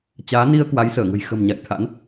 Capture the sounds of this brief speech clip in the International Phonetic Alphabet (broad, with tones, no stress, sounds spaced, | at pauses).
t͡ɕ aː˨˦ n i˧ ə̯ k w a˨˦ j s əː˧˩ ŋ ə̤˨˩ j x ə̤˨˩ m ɲ a̰˧˨ j t̪ʰ a̰˧˥ n